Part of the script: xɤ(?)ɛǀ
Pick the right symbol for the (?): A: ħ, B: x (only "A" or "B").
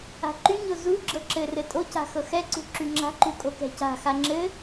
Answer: B